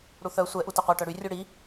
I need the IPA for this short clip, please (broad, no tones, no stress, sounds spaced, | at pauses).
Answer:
ɽ u θ œ sʷ ɛ ʔ u t ɐ qʷ œ ʈ œ ɽ y rʲ u ɽ i